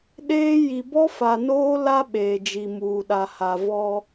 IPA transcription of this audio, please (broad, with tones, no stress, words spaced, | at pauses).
ɗeː˦ ji˨bɔ˦ fa˨noː˦la˦ ɓeː˨d͡ʒi˨muː˨ɗa˨ ha˨ vɔ˦